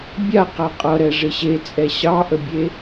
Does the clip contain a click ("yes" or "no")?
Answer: no